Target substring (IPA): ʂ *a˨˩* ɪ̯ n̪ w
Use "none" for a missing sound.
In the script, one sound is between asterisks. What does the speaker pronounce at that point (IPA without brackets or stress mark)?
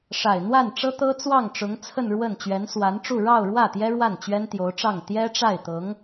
a˨˩